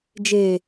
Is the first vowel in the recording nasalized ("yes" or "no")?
no